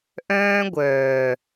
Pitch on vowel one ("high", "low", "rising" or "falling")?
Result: high